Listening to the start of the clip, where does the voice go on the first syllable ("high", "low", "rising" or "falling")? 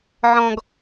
low